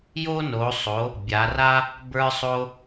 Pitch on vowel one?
high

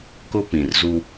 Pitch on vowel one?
high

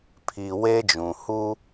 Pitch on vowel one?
low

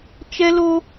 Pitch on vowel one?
high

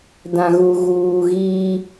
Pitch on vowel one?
low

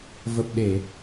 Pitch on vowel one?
low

